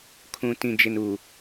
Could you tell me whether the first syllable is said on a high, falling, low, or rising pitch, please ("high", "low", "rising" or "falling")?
low